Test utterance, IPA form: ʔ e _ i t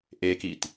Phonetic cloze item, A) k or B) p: A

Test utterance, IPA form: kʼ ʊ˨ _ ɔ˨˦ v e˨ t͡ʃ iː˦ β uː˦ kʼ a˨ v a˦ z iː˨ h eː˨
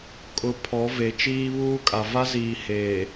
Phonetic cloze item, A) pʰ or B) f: A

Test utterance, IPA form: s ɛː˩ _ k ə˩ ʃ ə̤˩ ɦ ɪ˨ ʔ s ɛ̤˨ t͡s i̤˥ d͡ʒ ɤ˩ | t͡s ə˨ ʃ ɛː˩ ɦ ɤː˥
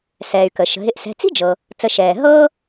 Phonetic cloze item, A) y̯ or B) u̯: A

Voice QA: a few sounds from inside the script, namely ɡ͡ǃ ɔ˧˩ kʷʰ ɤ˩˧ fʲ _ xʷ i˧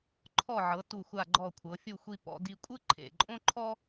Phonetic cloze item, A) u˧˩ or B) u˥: A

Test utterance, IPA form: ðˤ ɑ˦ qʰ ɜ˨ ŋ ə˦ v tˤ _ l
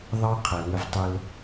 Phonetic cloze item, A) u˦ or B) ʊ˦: B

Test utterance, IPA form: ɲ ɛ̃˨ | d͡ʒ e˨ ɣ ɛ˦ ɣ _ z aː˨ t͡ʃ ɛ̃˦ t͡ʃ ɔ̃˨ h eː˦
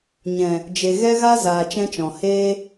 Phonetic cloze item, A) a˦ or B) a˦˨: A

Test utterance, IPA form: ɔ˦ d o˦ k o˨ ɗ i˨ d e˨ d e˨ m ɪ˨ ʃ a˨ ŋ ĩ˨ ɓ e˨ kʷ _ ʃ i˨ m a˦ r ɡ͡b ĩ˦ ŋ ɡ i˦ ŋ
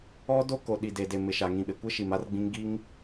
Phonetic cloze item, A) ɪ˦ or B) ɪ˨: A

